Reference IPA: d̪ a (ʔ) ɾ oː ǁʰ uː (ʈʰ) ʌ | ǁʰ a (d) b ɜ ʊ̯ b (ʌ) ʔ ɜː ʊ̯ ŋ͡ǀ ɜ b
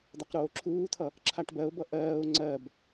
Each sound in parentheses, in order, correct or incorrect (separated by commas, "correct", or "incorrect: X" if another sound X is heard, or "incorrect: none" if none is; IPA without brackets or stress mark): incorrect: q, incorrect: t̪ʰ, incorrect: ʈ, correct